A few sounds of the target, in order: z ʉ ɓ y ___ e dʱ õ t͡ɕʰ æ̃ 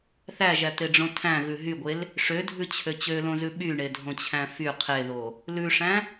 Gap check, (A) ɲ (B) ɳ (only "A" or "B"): B